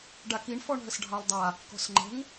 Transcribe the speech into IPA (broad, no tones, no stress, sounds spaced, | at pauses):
ɖ a k i ɳ f ɔ ɳ ɦ ə s ɖʱ ɑ lˠ dˤ a | k ɔ̤ s ŋ͡ǃ ə̤ ŋ